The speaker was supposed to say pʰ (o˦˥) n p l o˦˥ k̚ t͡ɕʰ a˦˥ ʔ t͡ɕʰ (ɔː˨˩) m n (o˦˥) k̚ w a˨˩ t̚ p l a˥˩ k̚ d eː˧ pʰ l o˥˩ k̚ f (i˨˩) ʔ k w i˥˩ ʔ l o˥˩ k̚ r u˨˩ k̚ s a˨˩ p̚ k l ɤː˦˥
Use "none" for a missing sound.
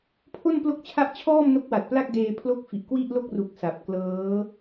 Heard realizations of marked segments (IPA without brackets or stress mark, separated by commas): o˥˩, ɔː˥˩, o˦˥, i˨˩